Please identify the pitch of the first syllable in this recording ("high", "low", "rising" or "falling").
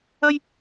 high